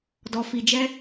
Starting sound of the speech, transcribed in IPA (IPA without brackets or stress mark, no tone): d